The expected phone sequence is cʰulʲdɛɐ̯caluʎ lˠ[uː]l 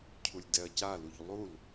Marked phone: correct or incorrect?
incorrect